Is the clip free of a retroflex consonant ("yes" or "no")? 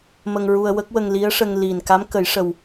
no